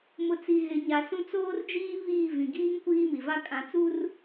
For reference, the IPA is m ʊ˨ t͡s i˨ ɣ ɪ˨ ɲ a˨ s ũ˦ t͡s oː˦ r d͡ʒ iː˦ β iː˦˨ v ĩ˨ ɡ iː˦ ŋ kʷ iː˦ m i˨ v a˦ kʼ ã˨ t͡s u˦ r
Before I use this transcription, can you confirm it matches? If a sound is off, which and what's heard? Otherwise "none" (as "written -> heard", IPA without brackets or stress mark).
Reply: none